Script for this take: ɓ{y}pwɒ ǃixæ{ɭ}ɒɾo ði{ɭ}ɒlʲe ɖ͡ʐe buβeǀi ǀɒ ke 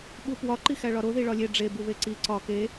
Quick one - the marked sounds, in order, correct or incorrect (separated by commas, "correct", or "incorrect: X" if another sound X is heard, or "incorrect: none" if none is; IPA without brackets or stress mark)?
incorrect: u, correct, correct